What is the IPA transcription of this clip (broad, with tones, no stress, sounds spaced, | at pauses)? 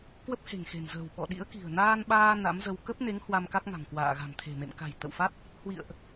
k w ə˦˥ p̚ h e̤˨˩ ŋ x e̤˨˩ n z ə̤ː˨˩ w ɓ ɔ̰˧˨ ɗ ḭ˧˥ ə̯ k i̤˨˩ ə̯ n aː˧ n ɓ aː˧ n a̰˧˥ m z ə˧ w k ə˦˥ p̚ n e˨˦ ŋ h w a˧ m k a˦˥ k̚ ŋ a̤˨˩ ŋ k w a̰ː˧˨ ɣ a̤˨˩ m t̪ʰ e̤˨˩ m ḛ˧˨ m k a̤˨˩ j t̪ ə̰˧˨ w f a˦˥ t̚ | h w ḭ˧˨ ə̯ ʔ